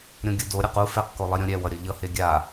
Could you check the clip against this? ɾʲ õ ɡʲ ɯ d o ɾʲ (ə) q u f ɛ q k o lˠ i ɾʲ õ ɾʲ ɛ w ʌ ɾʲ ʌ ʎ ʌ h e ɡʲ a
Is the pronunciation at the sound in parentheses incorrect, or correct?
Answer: incorrect